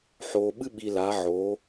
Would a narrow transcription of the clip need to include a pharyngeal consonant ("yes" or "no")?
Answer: yes